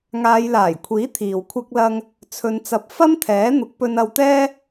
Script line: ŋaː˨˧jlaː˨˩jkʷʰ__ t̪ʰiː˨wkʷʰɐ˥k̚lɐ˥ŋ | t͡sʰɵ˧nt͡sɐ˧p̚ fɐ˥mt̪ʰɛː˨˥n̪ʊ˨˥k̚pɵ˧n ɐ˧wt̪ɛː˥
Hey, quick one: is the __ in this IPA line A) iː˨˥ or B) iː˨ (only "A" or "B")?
A